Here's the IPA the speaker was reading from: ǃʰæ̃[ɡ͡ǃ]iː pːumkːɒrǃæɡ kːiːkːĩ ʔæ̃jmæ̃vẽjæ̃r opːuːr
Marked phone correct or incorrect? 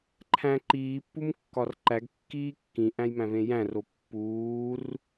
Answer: incorrect